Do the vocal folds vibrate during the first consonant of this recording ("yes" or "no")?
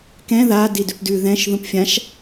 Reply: no